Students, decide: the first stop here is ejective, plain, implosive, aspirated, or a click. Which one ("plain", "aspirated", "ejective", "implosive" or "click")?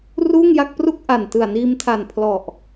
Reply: plain